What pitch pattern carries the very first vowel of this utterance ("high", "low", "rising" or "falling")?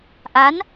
rising